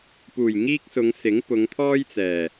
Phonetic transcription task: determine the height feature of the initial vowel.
high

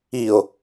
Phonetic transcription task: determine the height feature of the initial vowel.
high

